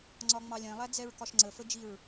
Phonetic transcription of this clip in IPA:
ŋ͡ǀ ɒ ŋ͡m ɑ lʲ ɛ̃ lˠ æ d͡z ɛ ɹ k ɒ ʃ ŋ͡ǀ ə f ə d͡ʒ i ɹ

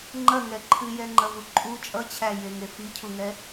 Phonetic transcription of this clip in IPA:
ŋ͡ǃ ɐ ŋ ɛ ǃʰ ɨ j ɛ ŋ͡ǃ ɐ v u ǃʼ u t͡ʃʼ ʌ t͡ɕʰ æ j e ŋ e f i cʰ u ŋ ɛ

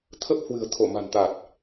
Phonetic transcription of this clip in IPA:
t̪ʰ ə˦˥ p̚ h w ɨ̤˨˩ ə̯ t̪ʰ o˧˩ m a̤˨˩ n t̪ a˨˩ t̚

